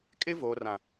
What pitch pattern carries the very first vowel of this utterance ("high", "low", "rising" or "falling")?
high